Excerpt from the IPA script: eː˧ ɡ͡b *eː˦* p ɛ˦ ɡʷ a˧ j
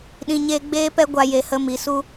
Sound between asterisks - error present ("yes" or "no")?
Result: no